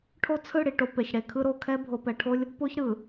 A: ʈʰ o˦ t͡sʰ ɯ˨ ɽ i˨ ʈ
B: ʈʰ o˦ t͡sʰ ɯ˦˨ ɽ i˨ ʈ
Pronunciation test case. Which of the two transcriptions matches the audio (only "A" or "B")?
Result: B